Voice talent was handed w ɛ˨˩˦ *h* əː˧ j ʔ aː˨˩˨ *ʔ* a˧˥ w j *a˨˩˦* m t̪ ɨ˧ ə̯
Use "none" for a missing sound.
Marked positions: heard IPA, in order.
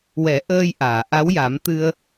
ʔ, ʔ, a˨˩˦

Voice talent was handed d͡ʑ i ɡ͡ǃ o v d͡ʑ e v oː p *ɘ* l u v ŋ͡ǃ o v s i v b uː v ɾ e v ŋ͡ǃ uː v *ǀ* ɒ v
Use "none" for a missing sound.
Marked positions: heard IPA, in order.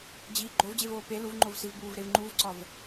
e, ǀ

